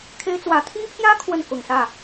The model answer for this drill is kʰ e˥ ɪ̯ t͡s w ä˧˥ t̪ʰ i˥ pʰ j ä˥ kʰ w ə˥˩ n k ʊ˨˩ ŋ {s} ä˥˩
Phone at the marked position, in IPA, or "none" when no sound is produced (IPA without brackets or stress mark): s